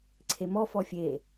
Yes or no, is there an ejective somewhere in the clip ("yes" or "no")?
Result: no